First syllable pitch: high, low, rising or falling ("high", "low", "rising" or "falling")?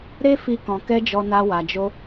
high